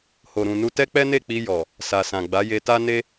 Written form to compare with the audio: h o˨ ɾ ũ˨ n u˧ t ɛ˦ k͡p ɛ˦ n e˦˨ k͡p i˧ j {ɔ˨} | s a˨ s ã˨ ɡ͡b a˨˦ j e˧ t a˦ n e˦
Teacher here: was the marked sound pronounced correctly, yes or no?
yes